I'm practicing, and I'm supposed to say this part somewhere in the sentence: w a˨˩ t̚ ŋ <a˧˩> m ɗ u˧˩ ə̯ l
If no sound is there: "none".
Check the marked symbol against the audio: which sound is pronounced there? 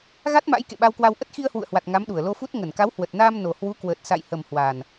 a˨˦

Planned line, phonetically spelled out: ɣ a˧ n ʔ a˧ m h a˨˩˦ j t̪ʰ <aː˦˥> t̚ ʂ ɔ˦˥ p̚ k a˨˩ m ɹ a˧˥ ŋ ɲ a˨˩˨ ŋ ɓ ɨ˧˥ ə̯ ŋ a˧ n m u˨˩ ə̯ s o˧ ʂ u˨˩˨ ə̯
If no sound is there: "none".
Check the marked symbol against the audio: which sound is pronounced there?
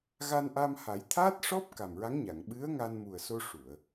aː˦˥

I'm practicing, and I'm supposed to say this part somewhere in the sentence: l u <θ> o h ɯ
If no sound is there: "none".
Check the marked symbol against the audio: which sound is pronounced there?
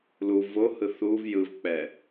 v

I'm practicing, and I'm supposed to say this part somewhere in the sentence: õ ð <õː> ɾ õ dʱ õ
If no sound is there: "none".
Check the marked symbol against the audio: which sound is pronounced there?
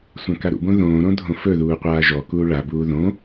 õː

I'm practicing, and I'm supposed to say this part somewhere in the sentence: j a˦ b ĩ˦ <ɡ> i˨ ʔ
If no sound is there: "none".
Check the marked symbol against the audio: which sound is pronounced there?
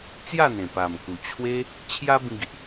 ɡ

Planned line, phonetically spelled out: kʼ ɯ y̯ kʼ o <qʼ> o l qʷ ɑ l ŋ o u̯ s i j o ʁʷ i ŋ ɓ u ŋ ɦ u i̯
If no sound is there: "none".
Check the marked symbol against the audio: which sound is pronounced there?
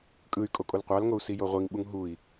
kʼ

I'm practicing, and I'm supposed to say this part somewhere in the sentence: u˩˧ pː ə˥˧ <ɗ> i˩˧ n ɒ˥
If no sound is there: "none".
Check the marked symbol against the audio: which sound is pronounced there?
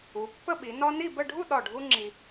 ɓ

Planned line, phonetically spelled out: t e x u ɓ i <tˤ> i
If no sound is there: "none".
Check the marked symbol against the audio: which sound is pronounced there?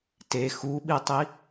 tˤ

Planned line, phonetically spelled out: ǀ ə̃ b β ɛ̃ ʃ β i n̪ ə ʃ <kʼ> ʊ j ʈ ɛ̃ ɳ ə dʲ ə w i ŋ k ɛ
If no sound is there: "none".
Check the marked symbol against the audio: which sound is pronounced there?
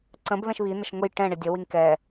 ŋ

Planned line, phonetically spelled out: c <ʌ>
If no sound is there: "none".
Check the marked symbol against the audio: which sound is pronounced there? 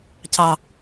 ɑ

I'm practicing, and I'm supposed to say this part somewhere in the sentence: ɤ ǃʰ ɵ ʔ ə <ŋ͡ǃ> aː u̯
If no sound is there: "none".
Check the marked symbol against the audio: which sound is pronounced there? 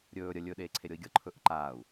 ǃ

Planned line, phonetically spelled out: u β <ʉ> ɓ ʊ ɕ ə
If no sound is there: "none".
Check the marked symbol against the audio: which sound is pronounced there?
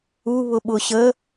ʊ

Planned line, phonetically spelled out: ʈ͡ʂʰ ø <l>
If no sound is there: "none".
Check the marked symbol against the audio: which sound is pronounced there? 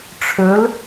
l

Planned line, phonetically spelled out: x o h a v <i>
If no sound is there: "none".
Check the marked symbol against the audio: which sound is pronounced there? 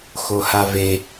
e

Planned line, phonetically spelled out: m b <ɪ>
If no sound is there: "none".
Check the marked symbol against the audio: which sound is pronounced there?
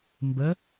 ə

